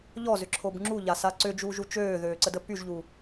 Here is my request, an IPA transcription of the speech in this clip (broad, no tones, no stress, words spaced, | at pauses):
ʎɔzʏǁʰob ŋ͡ǁuʎasa ǀʏd͡ʒuːʒu t͡ʃøːðøːǀədə pyʒʎu